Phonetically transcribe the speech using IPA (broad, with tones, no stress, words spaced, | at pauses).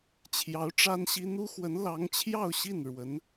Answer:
t͡ɕʰjɑ˧˥ʊ̯ʈ͡ʂa˥nɕi˥ n̪u˥xwə˧˥n lɑ˧˥ŋt͡ɕʰjɑ˥˧ʊ̯ɕi˥˩n ɻwə˧˥n